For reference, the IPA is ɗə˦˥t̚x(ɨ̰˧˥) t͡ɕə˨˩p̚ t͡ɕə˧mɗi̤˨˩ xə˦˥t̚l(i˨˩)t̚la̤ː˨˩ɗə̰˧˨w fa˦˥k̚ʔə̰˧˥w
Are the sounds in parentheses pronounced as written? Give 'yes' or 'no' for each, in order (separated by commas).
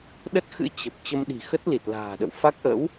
yes, yes